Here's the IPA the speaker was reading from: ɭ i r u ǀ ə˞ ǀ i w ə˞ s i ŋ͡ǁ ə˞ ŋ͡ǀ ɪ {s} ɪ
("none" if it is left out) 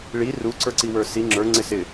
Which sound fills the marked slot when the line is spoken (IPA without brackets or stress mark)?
s